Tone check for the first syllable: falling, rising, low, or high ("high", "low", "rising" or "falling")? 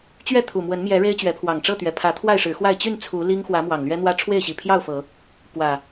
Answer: falling